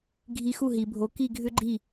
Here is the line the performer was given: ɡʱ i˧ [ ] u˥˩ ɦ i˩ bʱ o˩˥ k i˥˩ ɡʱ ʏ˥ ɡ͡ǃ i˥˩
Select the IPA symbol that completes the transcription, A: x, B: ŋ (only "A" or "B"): A